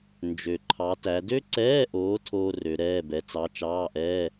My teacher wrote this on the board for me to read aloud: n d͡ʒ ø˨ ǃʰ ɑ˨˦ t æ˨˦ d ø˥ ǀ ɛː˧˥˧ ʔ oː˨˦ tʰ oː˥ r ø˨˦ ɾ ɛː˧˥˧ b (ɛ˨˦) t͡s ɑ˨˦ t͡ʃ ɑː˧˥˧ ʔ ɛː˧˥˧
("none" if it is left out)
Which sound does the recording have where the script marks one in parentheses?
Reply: ɛ˨˦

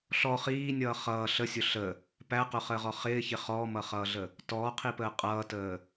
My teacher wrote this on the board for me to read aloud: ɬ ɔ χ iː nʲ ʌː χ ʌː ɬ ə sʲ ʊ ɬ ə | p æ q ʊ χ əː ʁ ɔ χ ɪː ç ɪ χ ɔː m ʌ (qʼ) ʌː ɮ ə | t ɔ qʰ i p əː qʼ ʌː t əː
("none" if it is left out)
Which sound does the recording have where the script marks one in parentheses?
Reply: χ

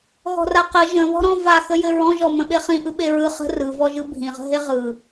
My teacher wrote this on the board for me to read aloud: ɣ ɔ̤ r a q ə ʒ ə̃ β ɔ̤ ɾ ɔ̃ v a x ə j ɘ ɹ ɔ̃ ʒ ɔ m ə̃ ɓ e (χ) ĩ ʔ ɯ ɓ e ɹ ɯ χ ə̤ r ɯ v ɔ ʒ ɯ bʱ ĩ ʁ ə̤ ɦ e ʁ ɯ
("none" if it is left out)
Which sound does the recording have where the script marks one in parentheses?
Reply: χ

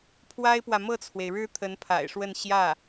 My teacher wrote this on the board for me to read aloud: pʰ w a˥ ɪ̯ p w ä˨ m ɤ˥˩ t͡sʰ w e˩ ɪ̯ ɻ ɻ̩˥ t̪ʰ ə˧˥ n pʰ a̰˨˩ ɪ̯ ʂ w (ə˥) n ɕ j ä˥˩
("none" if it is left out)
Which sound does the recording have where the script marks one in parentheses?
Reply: ə˥˧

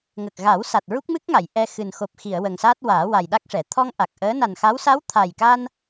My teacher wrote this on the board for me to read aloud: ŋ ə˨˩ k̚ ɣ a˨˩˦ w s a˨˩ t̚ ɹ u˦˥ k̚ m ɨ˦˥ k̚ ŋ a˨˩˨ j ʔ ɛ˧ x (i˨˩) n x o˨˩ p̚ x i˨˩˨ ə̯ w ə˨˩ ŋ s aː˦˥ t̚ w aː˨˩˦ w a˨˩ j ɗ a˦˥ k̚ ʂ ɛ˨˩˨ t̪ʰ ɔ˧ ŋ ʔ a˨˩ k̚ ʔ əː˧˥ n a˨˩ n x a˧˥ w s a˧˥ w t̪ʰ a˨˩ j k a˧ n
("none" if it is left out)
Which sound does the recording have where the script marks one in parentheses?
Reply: ɨ˨˩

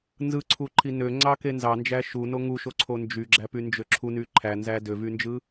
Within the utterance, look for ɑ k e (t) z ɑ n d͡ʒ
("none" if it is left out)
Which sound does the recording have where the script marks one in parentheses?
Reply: n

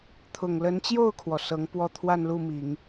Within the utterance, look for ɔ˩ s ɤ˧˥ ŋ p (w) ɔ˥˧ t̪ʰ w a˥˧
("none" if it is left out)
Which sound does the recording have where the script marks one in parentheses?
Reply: w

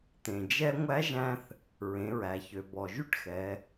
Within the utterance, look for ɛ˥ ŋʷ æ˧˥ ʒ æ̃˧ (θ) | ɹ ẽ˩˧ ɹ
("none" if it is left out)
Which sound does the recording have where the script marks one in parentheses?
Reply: θ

